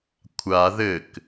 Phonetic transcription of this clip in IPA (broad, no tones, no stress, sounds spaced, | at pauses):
kʷʰ a ð ɘ k